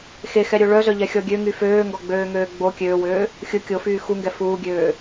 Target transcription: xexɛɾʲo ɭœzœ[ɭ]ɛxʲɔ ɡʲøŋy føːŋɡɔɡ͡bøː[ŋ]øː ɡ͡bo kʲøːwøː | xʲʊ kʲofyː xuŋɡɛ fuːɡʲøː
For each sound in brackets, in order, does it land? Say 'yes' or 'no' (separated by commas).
no, yes